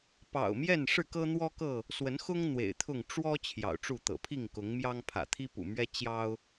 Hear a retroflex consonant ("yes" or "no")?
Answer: yes